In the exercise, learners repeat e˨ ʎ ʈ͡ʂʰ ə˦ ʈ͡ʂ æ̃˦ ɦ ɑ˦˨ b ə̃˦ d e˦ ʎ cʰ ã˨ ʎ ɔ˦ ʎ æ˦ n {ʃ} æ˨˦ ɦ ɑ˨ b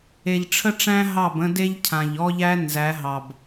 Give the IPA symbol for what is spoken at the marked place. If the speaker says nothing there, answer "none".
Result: z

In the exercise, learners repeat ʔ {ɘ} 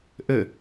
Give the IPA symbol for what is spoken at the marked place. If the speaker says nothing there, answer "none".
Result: ɘ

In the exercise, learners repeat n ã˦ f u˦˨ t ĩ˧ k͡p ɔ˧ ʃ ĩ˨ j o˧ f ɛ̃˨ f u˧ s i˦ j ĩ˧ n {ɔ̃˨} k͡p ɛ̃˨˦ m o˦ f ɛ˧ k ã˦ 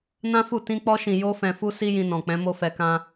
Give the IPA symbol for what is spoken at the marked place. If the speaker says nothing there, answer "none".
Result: ɔ̃˨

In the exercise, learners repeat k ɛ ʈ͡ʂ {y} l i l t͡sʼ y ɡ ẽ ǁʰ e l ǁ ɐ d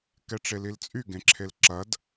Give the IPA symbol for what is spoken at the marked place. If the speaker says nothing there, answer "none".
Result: e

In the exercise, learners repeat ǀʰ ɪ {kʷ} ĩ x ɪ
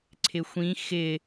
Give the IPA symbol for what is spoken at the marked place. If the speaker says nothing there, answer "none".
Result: xʷ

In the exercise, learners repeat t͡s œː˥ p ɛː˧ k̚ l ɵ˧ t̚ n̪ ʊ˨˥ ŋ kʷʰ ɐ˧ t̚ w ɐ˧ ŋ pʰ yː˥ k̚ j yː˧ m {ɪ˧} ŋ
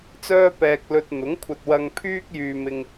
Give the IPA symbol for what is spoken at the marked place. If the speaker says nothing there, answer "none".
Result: ɪ˧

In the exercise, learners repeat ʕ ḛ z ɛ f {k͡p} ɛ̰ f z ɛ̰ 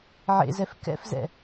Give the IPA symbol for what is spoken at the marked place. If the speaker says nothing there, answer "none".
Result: k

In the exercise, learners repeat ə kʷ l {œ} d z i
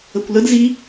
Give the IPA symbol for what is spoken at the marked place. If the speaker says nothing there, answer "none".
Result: ə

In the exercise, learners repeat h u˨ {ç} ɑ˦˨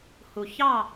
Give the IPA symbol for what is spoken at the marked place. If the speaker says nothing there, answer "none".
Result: ç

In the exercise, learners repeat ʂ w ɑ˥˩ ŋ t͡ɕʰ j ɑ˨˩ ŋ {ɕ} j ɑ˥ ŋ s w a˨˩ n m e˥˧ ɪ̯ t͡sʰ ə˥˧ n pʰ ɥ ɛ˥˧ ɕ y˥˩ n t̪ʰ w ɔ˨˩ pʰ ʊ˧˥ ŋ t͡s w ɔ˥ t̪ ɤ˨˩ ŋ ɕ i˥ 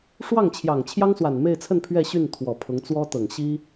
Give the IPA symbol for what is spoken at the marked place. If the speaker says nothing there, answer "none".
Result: t͡ɕʰ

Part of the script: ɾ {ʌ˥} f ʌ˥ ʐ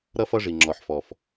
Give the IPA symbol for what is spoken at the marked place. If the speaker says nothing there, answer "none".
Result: ʌ˥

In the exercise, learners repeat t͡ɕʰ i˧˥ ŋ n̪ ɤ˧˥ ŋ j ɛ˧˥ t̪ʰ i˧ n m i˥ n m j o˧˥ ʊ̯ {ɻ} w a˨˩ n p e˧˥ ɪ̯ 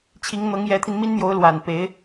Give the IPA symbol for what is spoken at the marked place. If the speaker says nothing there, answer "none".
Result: l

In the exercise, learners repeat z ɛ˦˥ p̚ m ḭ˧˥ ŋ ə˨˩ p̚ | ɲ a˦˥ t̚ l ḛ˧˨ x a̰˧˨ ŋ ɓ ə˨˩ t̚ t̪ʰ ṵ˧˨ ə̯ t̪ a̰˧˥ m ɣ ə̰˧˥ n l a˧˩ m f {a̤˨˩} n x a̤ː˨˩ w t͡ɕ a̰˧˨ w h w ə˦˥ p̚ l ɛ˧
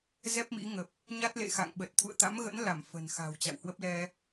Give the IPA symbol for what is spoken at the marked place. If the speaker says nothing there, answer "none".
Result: ə̤˨˩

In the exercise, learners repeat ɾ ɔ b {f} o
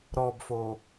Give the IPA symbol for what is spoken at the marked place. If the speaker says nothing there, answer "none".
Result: f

